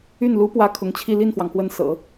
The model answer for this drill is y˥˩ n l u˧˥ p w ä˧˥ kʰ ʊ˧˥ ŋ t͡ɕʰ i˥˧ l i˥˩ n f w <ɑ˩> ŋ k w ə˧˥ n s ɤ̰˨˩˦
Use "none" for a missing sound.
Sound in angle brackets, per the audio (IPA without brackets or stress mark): ɑ˩